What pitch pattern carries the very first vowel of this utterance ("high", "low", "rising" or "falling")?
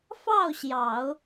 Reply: falling